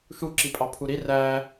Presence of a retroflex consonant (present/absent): absent